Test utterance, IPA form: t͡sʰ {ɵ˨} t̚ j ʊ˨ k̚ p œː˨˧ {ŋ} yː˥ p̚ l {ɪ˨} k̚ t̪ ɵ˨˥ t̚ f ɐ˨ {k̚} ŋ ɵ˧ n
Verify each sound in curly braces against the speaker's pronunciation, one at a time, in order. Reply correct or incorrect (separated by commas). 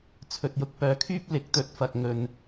correct, incorrect, incorrect, correct